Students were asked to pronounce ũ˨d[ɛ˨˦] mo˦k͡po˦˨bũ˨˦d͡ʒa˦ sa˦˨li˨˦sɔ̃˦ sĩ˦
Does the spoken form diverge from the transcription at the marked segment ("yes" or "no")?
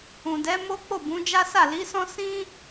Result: no